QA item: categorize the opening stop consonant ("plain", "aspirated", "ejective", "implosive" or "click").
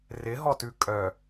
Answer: plain